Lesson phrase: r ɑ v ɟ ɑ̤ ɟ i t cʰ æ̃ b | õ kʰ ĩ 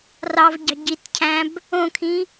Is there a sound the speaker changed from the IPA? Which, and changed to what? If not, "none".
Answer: none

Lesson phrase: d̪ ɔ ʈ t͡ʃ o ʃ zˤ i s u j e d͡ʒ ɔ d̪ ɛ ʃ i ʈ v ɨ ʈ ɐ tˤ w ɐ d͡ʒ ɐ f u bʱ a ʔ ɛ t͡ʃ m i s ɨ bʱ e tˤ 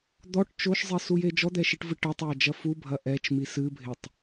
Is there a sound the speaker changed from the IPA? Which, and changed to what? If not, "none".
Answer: a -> ɐ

